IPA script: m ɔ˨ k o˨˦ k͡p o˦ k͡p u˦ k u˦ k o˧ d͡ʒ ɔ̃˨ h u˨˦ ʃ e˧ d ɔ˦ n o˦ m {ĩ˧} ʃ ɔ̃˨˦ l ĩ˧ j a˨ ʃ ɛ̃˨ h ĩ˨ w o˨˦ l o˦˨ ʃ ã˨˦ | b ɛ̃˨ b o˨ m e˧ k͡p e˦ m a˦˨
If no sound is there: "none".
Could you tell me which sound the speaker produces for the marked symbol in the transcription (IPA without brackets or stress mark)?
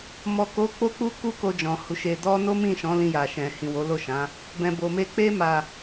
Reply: ĩ˦˨